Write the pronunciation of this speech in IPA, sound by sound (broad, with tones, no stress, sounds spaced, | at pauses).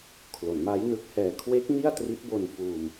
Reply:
kʰ l o˩˦ n m a˦˥ j n ɯ˦˥ k̚ h ɛː˧ kʰ w e˦˥ k̚ n i˥˩ a̯ t r i˦˥ t̚ b o˧ n f uː˧ m